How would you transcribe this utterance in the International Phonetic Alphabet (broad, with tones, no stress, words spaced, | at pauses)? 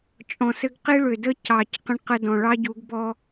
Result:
t͡ʃʼɔ̃˨sɘ˦ɡ qi˦ɭʏ˨də˦ cɑ˨c qə̃˦ɳqə˦dɔ̃˨ ɭɑ˦ɟu˨˦ɡ bɔ˦